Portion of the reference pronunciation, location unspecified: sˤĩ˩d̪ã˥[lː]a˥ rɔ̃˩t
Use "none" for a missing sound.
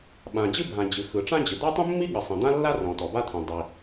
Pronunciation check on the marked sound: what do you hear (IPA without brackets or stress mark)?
lː